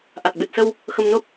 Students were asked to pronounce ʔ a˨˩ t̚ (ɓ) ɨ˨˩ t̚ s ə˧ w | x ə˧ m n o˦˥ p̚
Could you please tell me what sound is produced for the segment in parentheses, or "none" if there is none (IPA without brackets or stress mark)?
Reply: ɓ